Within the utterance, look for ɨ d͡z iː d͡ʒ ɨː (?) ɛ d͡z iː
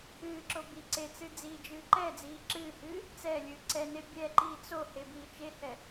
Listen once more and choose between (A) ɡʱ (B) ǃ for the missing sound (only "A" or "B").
B